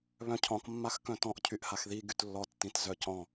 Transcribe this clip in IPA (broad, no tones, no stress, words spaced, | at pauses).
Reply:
βœ̃cʰɔ̃kmːax kœ̃tɔ̃ʔcʰyʔhax ði ɡytlːɔtːĩt zœcɔ̃